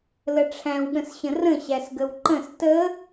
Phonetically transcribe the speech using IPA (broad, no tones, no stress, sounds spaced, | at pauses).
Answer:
l ə ʈ͡ʂʰ æ̃ w ɠ ə̃ s ɕ ə̃ r ə̃ ɕ æ s ɡ ə w ǃ ə̃ s t ə